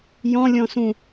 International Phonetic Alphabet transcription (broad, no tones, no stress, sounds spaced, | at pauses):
j ɔ̃ lʲ ɔ̃ s ũ